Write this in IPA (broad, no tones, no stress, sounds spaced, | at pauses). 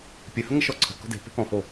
pʲ ɘ h ə ŋ ə ʃ ɔ ǀʰ ə̤ k ɔ̤ d e̤ p e̤ k ɔ̃ h o